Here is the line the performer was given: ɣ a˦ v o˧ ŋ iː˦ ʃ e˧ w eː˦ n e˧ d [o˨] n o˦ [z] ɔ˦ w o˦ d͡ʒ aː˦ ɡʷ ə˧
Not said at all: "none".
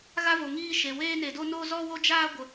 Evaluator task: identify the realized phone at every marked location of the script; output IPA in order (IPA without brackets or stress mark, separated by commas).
o˦, z